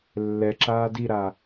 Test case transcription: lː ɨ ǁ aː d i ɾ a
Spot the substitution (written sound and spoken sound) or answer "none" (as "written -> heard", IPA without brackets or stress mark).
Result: ɨ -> ɛ